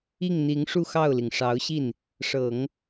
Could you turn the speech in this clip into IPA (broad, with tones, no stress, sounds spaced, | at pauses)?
i˥˩ ŋ n̪ i˧˥ ŋ ʂ u˥˧ x ɑ˥˩ ʊ̯ l i˩ ŋ ʂ ɑ˧˥ ʊ̯ ɕ i˥˩ n | ʂ ɤ˨˩˦ ŋ